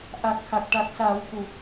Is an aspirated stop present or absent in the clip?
absent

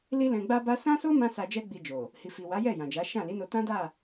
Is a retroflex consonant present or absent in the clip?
absent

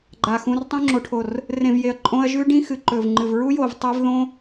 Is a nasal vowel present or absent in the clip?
present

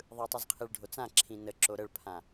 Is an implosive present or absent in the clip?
absent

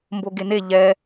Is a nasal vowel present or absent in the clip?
absent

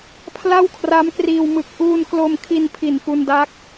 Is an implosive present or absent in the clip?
absent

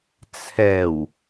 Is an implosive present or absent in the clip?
absent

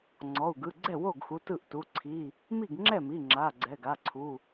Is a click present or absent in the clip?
present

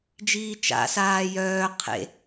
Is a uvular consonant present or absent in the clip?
present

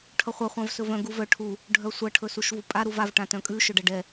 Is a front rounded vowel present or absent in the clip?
present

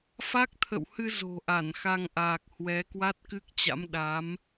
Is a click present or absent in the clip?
absent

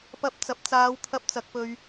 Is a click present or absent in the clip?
absent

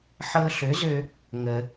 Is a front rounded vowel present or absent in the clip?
present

